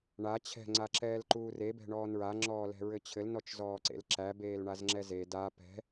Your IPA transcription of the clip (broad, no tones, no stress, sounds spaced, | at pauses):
ɳ a t͡ɕʰ ɛ̤ ŋ͡ǀ a ǁ ɛː l ǃ uː r e b ɛ̤ ɳ ɔː n ɹ a ŋ͡ǁ ɔː l ɛ̤ ɹ ɘ t͡ɕʰ ɘ l n ɔ t͡ʃ z ɔː ǀ ḛ l ǁ æ b eː l ɳ a z ŋ͡ǁ ɛ z e d a p ɛ̤